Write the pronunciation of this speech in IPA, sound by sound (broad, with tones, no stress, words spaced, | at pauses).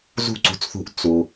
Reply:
zṳ˥ǀṳ˩˥t͡sθṳ˧ʔ t͡su˩